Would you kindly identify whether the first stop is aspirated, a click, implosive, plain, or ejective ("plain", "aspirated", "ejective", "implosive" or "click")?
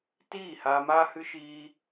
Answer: plain